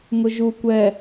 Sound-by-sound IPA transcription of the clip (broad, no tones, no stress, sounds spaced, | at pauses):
ŋ ʊ ʒ u kʷ ɛ